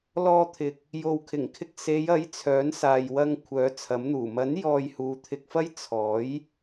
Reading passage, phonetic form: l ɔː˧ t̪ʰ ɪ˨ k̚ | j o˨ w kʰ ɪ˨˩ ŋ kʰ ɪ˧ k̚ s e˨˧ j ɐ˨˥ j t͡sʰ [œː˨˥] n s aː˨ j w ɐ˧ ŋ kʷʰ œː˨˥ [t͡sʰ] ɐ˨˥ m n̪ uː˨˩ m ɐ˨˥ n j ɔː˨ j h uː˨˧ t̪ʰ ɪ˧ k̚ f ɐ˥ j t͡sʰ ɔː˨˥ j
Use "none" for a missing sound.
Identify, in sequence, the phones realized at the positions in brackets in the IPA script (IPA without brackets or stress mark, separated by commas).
œː˨˥, t͡sʰ